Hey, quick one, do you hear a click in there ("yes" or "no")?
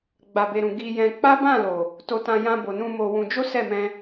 no